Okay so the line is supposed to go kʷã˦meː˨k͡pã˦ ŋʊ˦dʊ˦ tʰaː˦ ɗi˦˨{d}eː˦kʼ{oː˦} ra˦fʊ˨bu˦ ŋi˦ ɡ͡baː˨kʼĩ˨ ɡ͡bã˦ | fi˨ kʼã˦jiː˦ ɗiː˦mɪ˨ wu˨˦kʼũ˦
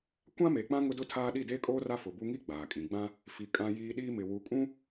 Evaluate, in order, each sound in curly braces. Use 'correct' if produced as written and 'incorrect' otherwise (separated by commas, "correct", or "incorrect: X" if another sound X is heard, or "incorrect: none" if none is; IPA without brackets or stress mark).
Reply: correct, correct